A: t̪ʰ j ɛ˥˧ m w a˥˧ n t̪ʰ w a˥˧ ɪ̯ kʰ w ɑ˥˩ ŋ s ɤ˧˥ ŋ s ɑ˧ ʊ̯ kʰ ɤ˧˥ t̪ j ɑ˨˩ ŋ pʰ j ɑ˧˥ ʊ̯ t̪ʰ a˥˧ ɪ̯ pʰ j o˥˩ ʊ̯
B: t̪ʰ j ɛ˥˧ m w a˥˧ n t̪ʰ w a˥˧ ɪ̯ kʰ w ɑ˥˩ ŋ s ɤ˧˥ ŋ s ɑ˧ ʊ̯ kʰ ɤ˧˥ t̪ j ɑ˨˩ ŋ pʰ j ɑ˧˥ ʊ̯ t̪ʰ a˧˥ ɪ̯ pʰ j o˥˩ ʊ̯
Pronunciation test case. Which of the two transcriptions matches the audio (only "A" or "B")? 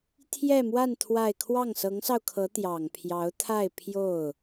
A